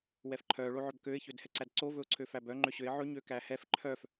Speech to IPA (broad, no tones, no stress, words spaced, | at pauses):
wɛfǃʰœ ɭoʕœbkøɪ̯ çødhɛǀædǀo vɵʊ̯ǀʰøfæbœ ŋ͡ǃøɕøɪ̯ ʕɵ ɲøkæhɛf ǃʰœf